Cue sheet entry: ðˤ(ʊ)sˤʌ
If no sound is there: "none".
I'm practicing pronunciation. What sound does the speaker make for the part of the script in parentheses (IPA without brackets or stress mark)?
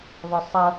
ʊ